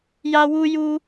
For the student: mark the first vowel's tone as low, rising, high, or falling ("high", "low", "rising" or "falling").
high